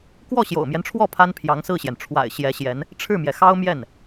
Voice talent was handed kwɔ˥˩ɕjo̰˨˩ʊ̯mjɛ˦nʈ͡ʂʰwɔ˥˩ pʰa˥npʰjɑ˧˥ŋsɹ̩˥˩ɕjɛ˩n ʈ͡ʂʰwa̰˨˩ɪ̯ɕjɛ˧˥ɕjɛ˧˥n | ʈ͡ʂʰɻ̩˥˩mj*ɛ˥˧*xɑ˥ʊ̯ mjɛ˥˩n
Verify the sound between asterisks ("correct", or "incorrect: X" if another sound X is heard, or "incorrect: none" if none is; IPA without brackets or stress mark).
incorrect: ɛ˩